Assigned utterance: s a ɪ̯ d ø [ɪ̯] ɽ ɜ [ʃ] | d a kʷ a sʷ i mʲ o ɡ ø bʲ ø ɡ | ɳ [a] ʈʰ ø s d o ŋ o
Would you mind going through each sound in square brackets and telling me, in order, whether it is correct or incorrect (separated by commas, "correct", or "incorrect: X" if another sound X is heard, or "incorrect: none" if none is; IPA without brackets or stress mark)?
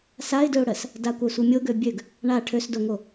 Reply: incorrect: ʊ̯, incorrect: s, correct